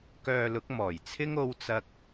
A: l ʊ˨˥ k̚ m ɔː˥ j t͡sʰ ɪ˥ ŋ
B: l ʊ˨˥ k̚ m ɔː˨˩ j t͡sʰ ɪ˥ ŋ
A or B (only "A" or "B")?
B